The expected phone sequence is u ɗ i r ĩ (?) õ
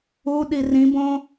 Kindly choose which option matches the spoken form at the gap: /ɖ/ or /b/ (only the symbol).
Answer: b